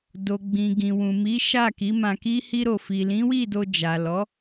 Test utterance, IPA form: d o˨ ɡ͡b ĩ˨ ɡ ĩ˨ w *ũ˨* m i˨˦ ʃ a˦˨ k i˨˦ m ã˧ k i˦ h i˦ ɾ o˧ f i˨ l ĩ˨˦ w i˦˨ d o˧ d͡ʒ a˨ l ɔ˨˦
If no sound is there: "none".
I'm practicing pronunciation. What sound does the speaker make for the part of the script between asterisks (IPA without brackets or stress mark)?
ũ˨